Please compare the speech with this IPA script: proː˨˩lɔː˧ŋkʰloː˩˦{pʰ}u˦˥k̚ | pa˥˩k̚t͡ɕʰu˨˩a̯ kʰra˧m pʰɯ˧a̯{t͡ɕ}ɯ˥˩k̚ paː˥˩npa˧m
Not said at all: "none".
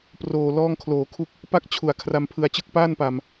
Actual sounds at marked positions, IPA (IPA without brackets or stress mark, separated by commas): kʰ, t͡ɕ